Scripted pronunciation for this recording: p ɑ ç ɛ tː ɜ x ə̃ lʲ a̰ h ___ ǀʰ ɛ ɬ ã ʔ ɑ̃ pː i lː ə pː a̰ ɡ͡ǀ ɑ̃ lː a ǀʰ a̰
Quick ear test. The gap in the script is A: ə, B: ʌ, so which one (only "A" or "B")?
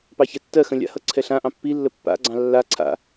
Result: B